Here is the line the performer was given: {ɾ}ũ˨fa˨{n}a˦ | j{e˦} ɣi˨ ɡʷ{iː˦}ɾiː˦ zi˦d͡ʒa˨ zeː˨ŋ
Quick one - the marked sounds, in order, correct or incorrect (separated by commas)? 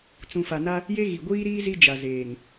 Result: incorrect, correct, correct, correct